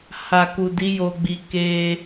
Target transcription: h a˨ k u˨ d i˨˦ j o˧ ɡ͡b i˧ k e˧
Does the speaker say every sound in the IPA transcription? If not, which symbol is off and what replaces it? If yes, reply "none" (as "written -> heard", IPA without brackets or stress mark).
none